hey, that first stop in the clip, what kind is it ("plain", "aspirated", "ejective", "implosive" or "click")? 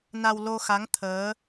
aspirated